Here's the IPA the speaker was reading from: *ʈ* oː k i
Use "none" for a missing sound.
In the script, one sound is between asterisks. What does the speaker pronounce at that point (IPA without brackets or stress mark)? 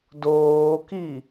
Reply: d